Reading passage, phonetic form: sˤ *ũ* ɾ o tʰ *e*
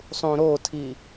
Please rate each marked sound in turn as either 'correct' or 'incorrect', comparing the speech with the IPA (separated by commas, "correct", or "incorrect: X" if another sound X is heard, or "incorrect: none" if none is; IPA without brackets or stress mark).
correct, incorrect: i